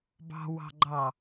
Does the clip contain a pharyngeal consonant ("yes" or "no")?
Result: no